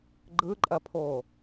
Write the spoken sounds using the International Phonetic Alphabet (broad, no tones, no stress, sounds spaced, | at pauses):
ɡ͡ǃ ɯ ǃʼ ɐ pʰ oː